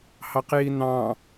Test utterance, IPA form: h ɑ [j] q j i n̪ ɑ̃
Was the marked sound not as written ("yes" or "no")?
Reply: yes